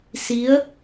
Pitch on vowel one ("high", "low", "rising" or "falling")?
rising